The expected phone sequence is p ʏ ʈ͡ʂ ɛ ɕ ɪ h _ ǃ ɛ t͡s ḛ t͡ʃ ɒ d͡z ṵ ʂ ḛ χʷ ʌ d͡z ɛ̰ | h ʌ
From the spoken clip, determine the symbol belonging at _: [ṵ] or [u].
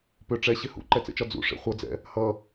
ṵ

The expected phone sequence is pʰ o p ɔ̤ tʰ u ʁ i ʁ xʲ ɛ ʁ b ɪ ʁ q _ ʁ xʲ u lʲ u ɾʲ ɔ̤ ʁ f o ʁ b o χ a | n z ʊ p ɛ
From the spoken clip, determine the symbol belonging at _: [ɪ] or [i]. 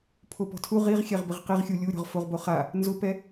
i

